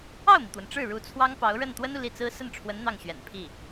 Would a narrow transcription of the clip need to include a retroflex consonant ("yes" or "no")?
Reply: yes